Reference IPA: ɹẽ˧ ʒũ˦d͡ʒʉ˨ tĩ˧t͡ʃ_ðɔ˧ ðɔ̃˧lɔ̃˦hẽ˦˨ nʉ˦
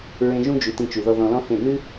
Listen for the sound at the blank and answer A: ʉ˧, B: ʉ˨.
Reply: B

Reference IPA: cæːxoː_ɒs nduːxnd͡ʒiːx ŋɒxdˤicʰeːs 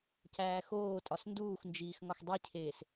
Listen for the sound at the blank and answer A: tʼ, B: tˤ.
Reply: A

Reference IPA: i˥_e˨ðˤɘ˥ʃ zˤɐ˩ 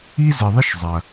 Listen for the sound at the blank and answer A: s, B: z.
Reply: B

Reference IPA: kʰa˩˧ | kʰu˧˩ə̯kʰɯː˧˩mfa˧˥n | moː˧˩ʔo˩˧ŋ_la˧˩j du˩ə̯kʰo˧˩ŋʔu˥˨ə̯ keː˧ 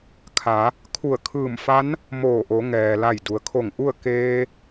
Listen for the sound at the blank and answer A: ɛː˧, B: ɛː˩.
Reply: B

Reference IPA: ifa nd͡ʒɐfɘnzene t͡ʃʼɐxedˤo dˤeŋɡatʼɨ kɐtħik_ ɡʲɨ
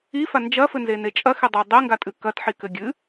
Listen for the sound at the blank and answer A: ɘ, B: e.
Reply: A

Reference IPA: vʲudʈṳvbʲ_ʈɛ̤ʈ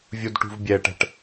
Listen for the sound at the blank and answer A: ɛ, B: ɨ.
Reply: A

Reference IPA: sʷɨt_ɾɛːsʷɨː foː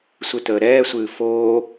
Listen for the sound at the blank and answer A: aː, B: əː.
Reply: B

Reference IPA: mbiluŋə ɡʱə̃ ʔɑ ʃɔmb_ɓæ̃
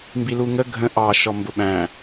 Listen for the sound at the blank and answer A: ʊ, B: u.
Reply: A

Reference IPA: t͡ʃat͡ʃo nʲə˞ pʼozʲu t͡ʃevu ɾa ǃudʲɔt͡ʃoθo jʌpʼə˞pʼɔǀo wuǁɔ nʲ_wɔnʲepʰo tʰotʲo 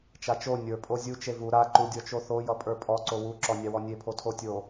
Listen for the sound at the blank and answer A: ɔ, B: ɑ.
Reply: B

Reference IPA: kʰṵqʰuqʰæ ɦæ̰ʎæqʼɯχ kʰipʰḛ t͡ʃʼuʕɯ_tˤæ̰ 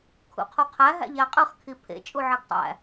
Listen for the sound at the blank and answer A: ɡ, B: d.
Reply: A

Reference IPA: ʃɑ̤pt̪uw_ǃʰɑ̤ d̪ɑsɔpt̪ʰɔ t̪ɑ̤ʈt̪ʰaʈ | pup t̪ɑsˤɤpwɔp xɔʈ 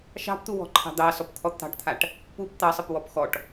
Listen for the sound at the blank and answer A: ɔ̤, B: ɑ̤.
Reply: A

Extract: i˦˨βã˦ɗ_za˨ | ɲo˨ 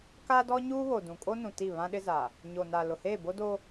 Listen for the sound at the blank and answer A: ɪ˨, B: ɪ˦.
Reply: B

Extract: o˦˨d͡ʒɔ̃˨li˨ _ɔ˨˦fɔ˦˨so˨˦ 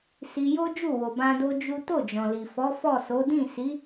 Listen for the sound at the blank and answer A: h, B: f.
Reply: B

